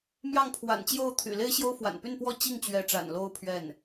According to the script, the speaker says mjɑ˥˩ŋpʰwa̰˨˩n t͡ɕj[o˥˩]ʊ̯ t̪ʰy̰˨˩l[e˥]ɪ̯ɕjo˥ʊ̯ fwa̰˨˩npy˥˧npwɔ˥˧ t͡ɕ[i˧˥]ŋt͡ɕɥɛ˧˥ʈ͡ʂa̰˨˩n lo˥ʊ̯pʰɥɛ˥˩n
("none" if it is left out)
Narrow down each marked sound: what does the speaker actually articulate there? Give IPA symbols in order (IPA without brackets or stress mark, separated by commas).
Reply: o˥˩, e˥, i˥˩